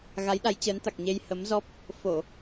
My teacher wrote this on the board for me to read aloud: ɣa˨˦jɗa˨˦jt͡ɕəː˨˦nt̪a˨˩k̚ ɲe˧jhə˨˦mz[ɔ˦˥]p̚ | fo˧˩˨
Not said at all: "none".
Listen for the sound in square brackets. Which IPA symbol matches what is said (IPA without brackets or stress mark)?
ɔ˦˥